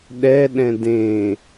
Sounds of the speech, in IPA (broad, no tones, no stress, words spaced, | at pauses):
ɗɛɗɛ̃ dẽ